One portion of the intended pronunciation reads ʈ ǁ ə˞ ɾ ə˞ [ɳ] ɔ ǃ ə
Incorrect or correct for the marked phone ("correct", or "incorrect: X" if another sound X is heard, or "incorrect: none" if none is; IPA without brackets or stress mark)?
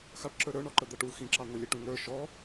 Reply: correct